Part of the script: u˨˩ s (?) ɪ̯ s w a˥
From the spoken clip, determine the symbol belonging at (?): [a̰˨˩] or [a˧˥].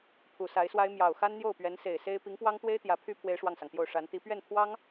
a˧˥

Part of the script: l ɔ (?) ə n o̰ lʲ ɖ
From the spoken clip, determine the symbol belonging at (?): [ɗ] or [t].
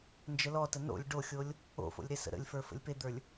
t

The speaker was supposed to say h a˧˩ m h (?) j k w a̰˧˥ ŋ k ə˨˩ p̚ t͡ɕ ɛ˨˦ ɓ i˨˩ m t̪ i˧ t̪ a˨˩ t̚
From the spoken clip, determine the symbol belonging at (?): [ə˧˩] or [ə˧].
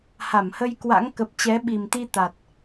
ə˧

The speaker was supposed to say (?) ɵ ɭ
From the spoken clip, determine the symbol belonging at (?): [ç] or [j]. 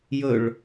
j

